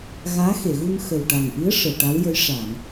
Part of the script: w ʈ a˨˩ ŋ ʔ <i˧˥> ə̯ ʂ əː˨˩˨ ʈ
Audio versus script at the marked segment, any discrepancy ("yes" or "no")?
no